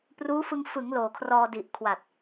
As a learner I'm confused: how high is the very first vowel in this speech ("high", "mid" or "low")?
high